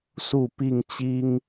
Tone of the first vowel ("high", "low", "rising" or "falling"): falling